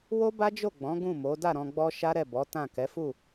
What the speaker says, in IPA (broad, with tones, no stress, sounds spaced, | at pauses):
w o˦ b a˦ d͡ʒ o˦˨ ɡ͡b ɔ̃˨˦ ɡ ũ˦˨ m o˨˦ d a˦˨ ɾ ɔ̃˧ ɡ͡b ɔ˦ ʃ a˦ ɾ ɛ˦˨ b ɔ˨˦ t ã˦˨ k ɛ˨˦ f u˦˨